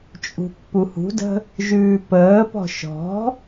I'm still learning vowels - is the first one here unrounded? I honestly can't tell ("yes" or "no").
no